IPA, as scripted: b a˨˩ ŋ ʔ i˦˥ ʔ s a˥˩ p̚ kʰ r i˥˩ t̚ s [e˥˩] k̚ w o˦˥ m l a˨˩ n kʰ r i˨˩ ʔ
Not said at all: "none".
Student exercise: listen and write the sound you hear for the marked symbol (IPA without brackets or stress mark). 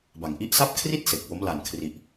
e˨˩